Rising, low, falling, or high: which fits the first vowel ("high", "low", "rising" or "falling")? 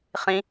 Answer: high